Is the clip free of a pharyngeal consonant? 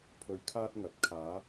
yes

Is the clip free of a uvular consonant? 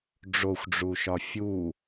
yes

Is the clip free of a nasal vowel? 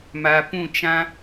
no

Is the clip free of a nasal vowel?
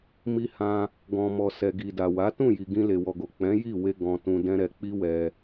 no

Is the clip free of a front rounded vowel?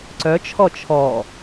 no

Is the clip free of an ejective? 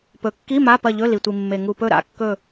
yes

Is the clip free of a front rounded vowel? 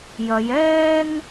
yes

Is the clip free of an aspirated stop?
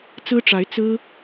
yes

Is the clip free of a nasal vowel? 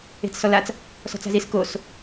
yes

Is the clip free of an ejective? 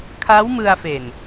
yes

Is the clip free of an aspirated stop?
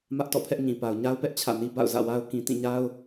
no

